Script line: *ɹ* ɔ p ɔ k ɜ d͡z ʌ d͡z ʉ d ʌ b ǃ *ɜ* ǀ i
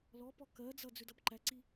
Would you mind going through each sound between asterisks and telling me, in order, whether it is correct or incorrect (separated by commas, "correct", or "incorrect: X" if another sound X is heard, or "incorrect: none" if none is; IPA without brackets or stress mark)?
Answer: incorrect: l, incorrect: æ